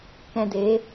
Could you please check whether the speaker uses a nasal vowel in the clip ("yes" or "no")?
yes